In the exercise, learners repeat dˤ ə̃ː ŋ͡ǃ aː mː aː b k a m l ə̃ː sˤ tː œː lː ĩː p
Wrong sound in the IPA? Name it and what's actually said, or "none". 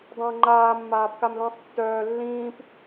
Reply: none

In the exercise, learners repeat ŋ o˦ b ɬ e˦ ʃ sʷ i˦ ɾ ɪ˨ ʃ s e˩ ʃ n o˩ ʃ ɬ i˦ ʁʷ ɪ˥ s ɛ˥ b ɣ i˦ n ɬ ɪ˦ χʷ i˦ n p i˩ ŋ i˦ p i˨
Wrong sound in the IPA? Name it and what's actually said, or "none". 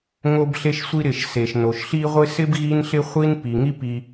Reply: ɛ˥ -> ɪ˥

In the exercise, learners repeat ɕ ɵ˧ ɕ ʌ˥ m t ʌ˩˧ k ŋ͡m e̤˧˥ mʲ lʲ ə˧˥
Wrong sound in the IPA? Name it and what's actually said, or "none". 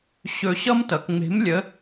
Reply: mʲ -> m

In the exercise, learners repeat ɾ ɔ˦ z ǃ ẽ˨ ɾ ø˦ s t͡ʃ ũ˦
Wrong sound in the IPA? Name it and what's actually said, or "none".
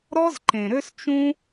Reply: none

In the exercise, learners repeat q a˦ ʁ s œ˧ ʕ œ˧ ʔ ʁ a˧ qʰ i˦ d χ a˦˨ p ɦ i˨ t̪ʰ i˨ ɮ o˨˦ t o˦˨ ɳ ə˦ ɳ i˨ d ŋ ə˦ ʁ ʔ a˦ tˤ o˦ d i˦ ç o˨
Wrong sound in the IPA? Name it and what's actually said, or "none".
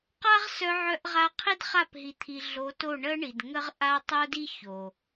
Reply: none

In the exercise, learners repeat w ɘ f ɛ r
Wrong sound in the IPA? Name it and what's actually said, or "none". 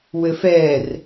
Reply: none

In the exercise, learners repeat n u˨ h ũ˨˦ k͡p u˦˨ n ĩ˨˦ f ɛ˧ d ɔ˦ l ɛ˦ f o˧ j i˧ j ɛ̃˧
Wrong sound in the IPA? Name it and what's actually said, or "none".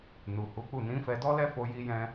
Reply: ũ˨˦ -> u˨˦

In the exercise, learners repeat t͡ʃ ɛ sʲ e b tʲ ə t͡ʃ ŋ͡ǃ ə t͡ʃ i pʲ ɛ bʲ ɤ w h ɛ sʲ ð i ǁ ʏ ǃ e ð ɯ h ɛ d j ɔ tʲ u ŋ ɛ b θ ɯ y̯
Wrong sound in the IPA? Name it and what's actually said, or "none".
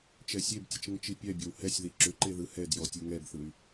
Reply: ŋ͡ǃ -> ŋ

